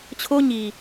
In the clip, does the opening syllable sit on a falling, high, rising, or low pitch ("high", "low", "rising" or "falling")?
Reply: high